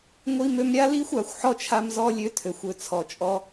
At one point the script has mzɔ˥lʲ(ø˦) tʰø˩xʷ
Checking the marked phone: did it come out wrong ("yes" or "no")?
no